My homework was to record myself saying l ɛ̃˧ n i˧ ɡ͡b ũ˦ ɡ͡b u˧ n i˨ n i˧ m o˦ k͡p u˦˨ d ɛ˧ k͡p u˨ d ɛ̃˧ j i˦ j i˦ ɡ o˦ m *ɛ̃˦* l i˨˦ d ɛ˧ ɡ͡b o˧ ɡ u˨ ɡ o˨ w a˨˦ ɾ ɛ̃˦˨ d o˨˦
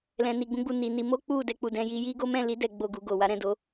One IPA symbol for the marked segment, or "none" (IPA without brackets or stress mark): ɛ̃˦˨